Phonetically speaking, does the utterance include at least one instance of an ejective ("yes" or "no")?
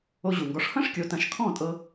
yes